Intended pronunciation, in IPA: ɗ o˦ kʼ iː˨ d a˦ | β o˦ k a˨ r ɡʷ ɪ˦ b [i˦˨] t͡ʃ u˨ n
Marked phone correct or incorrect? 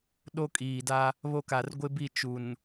correct